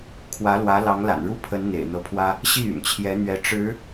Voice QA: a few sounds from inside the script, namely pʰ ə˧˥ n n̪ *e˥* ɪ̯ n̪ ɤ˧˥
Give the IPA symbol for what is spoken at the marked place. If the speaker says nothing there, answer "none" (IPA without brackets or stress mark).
ḛ˨˩